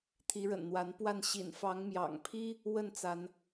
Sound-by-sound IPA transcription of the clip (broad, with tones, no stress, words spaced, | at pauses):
t̪ʰi˨˦ɻə̰˨˩nn̪wa˨˦npwa˥˨n ɕḭ˨˩nfɑ˨˦ŋmjɑ̰˨˩ŋpʰi˦ | wə˥˨nt͡sa˨˦n